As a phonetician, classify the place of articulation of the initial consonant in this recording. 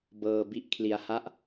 labial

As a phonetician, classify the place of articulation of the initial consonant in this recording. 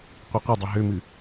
uvular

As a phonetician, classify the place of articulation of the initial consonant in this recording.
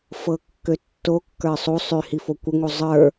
labial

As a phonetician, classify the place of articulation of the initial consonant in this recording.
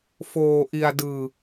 labial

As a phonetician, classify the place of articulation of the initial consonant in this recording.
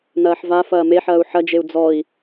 alveolar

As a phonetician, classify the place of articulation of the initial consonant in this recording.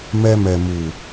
labial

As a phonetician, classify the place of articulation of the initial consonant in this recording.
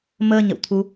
labial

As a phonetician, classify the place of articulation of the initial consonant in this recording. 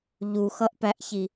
palatal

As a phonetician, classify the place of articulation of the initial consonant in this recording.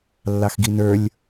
alveolar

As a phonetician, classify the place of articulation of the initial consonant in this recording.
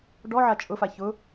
retroflex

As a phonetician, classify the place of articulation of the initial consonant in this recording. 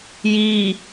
palatal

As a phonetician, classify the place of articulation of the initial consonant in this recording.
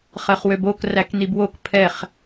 uvular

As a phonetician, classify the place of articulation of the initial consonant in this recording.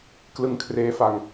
velar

